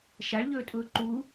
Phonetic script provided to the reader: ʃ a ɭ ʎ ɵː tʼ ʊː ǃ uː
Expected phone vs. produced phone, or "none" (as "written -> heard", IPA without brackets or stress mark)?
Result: none